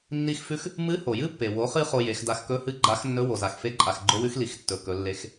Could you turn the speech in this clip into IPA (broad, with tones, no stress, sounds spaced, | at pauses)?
nː i˧ x f ʉ˧˥ x | m ɨ˧˥ h o˩ j ɨ˥ pː e˩ w o˩˧ χ ɨ˧ χ o˧ j e˩˧ x d a˧ x k ɵ˧˥ h ɨ˧˥ ɡ͡ǃ a˧˥ x nː ɵ˧˥ w o˩ z a˩ x f e˧˥ ǃʼ a˩ x ɡ͡ǃ o˧˥ w ʉ˧˥ x l i˩˧ x tː ɵ˩ k ɵ˩˧ lː e˧˥ x